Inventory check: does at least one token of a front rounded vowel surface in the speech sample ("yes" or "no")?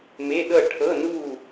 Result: no